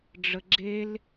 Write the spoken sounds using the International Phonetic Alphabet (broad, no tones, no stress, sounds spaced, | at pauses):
ɖ͡ʐ ə ɡ͡ǁ e l